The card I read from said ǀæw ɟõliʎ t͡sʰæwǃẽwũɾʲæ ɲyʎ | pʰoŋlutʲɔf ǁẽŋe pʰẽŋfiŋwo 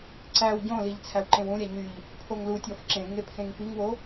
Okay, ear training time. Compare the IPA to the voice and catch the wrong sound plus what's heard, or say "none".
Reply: none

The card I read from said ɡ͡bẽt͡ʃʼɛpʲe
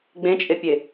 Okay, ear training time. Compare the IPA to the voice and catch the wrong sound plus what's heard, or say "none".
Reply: ɛ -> e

